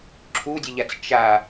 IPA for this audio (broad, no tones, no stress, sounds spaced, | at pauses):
ǁʰ u dʲ ə ʎ a t͡s t͡ʃ a